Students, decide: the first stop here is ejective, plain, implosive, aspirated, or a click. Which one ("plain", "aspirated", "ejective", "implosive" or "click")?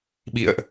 implosive